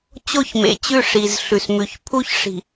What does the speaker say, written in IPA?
t͡ɕ o˦˨ ç m ḛ˨ t͡ɕ ʉ˦˨ ʂ i˨ z ɬ ʉ˨ s m ʉ˨ ç pʰ u˦ ç ʂ i̤˨

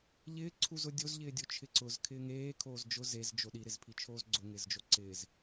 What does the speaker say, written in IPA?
ʎ ɪː ǀʰ u z ʊ dʲ o z ʎ ɪː dʲ o t͡ʃʰ ɪ ǀ ʊ z kʰ ɪː ŋ eː kʰ oː z d͡ʒ ʊ z e z d͡ʒ o ɗ i ɾ ɪ z pʰ i t͡ʃʰ oː z ɡ͡ǀ ʊ ŋ ɪː z d͡ʒ o ǀ ɪː z

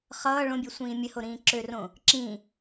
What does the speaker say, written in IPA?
χ ʌː ɭ õ bʲ ø sʷ ĩː mʲ ə h o ɾ ĩː ǁ ø r õ | ǁ ĩ

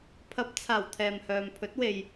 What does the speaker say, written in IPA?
pʰ ɐ˨˥ p̚ t͡sʰ aː˨˩ w t̪ʰ ɛː˨ m h œː˨ m pʰ ɵ˨˥ t̚ w e˨ j

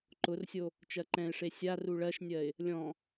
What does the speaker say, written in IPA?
ǃ ʊ r sʲ o | t͡ʃ ɜ ǃ ɛ̃ ɪ̯ ʂ e sʲ a r u ɭ ɜ ʃ nʲ ɜ ɪ̯ | lʲ ɔ̃

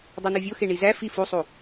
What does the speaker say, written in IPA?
dˤ æ n o vʲ o x e ɳ i z æ f i f u sˤ u

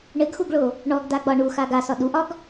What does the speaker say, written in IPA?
ɳ ɘ ɡ x u ɡ ɭ o | ɳ ɔ ɡ d a ɡ͡b ɒ ɳ u x a ɡ a s ɒ ɗ u ʔ ɒ ɡ

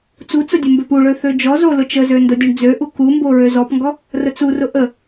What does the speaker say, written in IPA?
t͡s u t͡s ʊ dʲ o m b ø p u ɭ ø θ ø d͡ʒ ɔ z o l ʊ t͡ʃ ə z ø n d o dʲ o ɳ d͡z ø ʔ u k u m b o ɹ ø z ɔ p ŋ ɡ ɔ | r ə t͡s u r ʊ ʔ ə

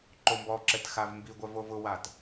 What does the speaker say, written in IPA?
ǃ o m b ɔ ǁ ɛ t x a v m b i ɡʷ œ v o v ʊ w a t

